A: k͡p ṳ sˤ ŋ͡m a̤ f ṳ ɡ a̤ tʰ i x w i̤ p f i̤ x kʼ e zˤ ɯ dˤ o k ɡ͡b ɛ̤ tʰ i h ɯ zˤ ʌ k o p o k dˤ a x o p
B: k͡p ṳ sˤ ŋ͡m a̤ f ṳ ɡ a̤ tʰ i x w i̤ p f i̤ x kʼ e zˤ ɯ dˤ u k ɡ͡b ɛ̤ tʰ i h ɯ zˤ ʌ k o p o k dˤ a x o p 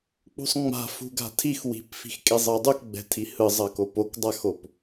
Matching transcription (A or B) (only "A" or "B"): B